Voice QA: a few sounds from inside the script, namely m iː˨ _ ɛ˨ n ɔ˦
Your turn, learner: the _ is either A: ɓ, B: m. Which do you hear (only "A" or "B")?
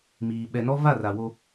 A